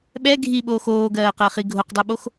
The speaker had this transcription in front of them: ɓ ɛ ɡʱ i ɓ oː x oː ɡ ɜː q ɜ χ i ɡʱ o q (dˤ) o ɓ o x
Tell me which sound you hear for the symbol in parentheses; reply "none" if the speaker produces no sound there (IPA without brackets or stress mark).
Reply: dˤ